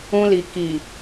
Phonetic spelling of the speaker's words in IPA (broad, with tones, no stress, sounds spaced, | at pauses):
ũ˧ l i˨ k i˨